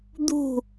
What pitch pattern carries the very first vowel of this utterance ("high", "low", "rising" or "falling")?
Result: falling